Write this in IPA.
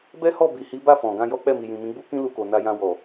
b ɛ˦ h ɔ˦˨ b i˨ h i˨˦ b a˦˨ f ɔ̃˨ ɡ ã˧ j ɔ˦ k͡p ɛ˦˨ m i˨ j ĩ˨ m ĩ˨˦ ɡ͡b u˦ k ĩ˦ l u˧ k o˨ n a˧ j ã˧ w ɔ˨

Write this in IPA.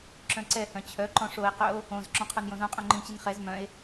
ǁ œ̃ ǀ ɛ h œ̃ t͡ɕʰ œ ǃ ɔ̃ ʂ o e̯ q œ o̯ | õ z ǁ ɔ̃ qʰ o n j õ z õ qʼ œ̃ ŋ͡ǃ ĩ t͡ɕ i n χ ɛ z m œ̃ e̯

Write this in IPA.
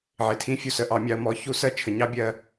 ʕ ɪ˩ tʰ ĩ˧˥ fʲ u˩ s ə˧ ʔ ɑ˩˧ mʲ ɑ˧ ə̯ m ɔ˧˥ ç u˧˥ s ɜ˥ t͡ʃʰ ə˩˧ ɲ ɑ˥ bʲ ɜ˧

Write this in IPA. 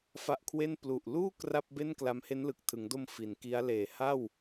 f a˦˥ ʔ kʰ w e˥˩ n p l u˨˩ ʔ l uː˥˩ k r a˥˩ p̚ b e˥˩ n k l a˦˥ m h e˦˥ n l ɯ˨˩ k̚ tʰ ɯ˩˦ ŋ d o˧ m f i˩˦ n k i˦˥ a̯ l eː˨˩ h a˥˩ w

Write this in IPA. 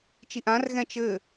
t͡ʃ i ʔ ã r ɣ ɛ̃ t͡ʃ ɘ

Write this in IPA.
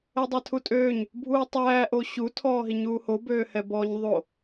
ɛ dˤ æ tʰ u tʼ øː ɲ | bʱ uː tˤ æː ʔ o ɕ u tʰ ɔː ɦ i ɲ uː h o b øː h ɛ b ɔː ɲ ðˤ o

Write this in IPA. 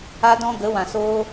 a˧ d ɔ̃˧ ɡ ə˨˦ w ã˨ s oː˧

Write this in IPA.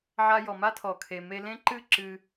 ʕ a˧ j ɔ˨ m a˦ tʰ ɔ˨ kʰ e˨ m e˧ l ẽ˦ ǃ ɨ˦ ǁ ɨ˧

